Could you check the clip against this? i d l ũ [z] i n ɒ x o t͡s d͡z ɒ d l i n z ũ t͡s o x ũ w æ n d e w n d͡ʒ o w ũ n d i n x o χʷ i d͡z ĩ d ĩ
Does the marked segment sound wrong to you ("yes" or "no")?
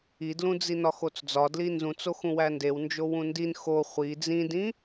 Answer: yes